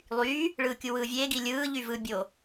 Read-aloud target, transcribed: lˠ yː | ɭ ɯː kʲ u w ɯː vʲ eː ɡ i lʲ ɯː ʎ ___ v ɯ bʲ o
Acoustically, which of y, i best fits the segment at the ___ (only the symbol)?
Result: y